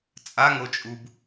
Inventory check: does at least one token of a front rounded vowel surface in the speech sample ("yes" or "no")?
no